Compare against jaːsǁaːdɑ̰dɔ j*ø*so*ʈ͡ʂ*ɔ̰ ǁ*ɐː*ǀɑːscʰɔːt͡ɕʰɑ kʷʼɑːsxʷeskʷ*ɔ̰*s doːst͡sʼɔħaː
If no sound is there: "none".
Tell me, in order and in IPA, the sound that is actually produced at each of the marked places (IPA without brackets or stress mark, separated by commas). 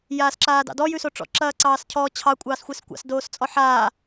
ʉ, ʈ͡ʂ, ɐː, ɑ̰